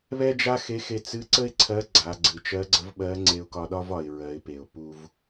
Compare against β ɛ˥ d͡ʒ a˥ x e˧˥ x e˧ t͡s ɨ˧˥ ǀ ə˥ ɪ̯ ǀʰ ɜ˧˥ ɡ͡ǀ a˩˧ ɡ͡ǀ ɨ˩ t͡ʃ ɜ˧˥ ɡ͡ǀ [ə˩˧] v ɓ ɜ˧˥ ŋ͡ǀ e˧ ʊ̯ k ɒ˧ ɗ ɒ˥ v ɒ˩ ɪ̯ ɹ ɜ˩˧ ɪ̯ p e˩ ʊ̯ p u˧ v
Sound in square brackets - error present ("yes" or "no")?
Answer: yes